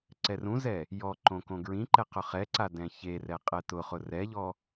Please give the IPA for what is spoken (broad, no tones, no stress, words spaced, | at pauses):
ǀɛrũzɛ | jɔǃõ kõɡɹĩǃɛ qʊχɛǀa dɛ̃çerɛ qʼɛtʊχʊ rɛʎɔ